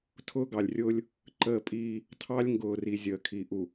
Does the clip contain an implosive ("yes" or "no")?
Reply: no